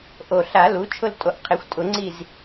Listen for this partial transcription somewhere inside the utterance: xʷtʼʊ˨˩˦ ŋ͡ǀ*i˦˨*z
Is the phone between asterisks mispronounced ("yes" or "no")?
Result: no